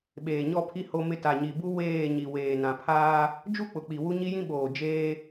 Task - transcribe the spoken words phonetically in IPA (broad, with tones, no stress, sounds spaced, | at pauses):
ɓ eː˨ ɲ ɔ˦˨ pʰ i˦ h o˦ m ɪ˦ t a˨ ɲ i˨ b u˦ w eː˦˨ ɲ i˨ w eː˨ n ã˨ pʰ aː˦ | d͡ʒ u˦ k͡p ʊ˨ k͡p i˨ w u˦ ɲ i˦ j ĩ˦ ɓ oː˨ d͡ʒ eː˦